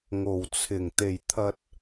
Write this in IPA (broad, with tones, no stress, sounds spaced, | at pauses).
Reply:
ŋ o˨˩ w t͡sʰ ɪ˨˩ ŋ t̪ e˨˩ j t̪ʰ ɐ˨ t̚